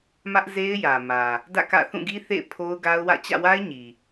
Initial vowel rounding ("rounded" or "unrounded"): unrounded